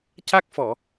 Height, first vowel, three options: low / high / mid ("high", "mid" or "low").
low